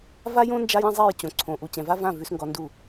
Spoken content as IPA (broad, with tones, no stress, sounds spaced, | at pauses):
v a˦ j õ˦ n d͡ʒ a˦ j ɛ̃˦ zˤ ɛ˦˨ j t͡ɕ õ˨ ǀʰ õ˨ ʔ u˨ t͡ɕ ɛ̃˨ v a˦ v ã˦˨ v ʉ˦ s ŋ ɡ ɔ˦ n d u˦˨